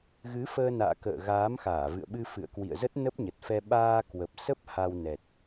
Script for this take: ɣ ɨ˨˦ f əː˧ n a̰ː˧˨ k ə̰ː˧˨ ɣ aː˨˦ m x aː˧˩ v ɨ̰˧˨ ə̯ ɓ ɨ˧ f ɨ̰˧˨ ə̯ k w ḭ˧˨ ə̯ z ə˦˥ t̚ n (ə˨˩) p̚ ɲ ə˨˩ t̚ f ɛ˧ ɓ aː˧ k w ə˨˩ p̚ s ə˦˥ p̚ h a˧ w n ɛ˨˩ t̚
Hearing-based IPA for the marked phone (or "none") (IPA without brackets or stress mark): ə˦˥